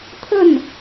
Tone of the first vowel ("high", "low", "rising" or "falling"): falling